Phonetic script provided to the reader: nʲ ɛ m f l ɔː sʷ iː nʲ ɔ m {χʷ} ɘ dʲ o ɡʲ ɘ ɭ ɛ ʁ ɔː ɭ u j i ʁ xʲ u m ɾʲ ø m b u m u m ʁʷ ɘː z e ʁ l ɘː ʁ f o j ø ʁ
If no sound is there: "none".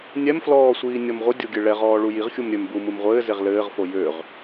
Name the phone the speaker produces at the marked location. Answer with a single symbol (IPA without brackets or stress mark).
ʁʷ